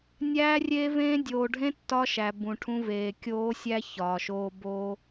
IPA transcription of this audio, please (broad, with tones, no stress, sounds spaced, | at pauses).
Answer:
nʲ æː˦ rʲ e˦ v ẽː˦ dʲ oː˨ ɖʱ ẽ˦ tː ɒ˦ ʃ æ˨ b ũ˨ ʈʰ ũ˦ v eː˨ kʲ oː˦ sʲ æ˦ ç ɒː˨ ʃ oː˦ b oː˦